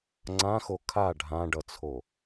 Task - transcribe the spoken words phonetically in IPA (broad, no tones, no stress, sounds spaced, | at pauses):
ŋ͡ǀ ã x o kʰ a ɖʱ ã ɖ ʌ t͡sʰ o